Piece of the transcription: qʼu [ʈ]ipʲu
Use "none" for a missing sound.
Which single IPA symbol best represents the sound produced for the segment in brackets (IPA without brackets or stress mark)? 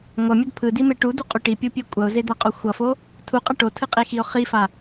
ʈ